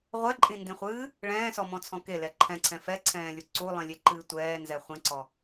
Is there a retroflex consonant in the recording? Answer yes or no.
yes